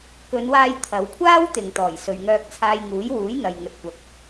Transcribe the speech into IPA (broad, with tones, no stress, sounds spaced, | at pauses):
k ɵ˨˧ n w aː˧ j t̪ʰ ɐ˨˧ w kʷʰ aː˥ w t̪ ɪ˨ ŋ t̪ ɔː˨˩ j s ɵ˨ ɥ ŋ œː˧ k̚ t͡sʰ aː˧ j ŋ uː˨˥ j w uː˨˥ j n̪ ɐ˨ j ŋ ɵ˨ t̚ kʷ ɐ˨ k̚